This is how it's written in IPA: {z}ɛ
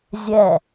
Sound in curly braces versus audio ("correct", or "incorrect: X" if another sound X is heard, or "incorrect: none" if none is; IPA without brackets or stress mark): incorrect: zʲ